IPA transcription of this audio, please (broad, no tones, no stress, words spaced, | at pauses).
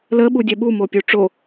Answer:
lə ɓudʲɛɓu mopʲuʈ͡ʂo